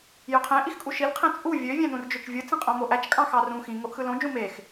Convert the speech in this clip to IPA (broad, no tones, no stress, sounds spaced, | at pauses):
j ø qʰ ẽ ʔ i x kʼ u ʃ i l qʰ ẽ t͡sʼ u vʲ ø vʲ æ̃ n ũ r d͡ʒ ø t͡ʃ vʲ ɯ t͡s ĩ qʼ õ m o ʔ æ t͡ʃ kʼ ɑ̃ x ɑ r ũ x ĩ ŋ o ʔ x ɯ l õ d͡ʒ ũ m e x